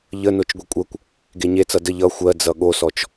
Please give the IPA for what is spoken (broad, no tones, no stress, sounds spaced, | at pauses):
ʎ ə n o t͡ʃ ɡʷ e kʷʼ ɜ kʷ | ɡ e ɲ e t͡s ʌ d ə ʎ ʌ xʷ ɜ d͡z ʌ ɠ o s ɔ t͡ʃ